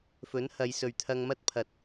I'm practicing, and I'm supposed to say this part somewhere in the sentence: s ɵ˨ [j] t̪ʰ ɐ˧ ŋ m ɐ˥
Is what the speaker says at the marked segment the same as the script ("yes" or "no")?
no